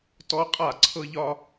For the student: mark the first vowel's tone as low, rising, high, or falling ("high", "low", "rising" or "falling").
high